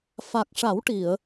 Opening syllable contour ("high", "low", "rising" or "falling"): low